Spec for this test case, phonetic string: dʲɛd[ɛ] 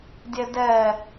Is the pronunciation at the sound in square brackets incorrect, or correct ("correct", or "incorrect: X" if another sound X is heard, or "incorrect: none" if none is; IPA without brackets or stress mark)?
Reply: correct